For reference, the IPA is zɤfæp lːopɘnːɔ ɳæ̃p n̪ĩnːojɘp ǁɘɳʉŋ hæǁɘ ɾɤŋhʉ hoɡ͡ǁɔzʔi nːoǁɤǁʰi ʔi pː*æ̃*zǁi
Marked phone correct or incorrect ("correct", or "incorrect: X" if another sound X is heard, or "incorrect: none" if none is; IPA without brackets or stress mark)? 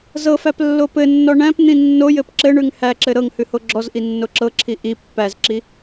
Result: incorrect: æ